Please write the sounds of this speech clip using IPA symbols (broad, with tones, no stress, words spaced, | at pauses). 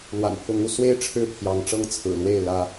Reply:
lwa̰˨˩npʰʊ˨˦ŋu˥˨ swe˦ɪ̯ ʈ͡ʂʰɻ̩˥˨pʰjɑ˨˦ŋʈ͡ʂɤ˦ŋ t͡sʰɹ̩˨˩lwe˥˨ɪ̯ lä˦